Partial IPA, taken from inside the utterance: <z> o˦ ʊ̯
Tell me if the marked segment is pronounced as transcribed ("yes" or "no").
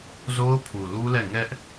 yes